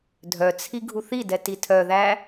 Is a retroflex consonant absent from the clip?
yes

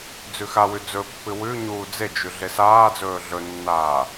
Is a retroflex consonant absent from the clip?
yes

